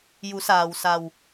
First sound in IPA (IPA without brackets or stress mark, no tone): j